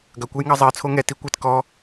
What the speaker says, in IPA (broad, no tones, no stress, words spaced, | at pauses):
ɡɐkʷɛjŋɑ zˤɜt͡sʰo ŋɛti kʷɛt kɔ